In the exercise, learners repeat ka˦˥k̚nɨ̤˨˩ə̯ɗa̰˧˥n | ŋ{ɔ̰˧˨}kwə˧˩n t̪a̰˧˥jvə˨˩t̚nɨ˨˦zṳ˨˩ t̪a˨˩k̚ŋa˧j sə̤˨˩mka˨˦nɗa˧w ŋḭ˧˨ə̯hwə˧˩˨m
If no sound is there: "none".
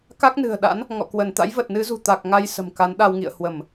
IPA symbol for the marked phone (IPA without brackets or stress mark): ɔ̰˧˨